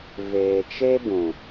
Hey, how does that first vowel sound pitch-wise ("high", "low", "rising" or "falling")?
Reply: low